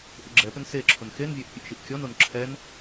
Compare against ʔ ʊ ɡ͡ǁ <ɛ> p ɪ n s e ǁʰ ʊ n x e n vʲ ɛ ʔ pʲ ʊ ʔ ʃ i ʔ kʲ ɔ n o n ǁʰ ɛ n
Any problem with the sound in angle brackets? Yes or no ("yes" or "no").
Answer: no